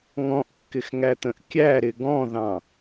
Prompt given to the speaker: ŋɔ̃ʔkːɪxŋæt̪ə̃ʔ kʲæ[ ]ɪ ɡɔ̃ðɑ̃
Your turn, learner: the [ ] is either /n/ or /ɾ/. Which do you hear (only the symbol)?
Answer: ɾ